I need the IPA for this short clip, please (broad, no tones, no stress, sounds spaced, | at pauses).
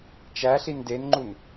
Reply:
t͡ʃ æ ɬ i n d e n ŋ͡ǃ u n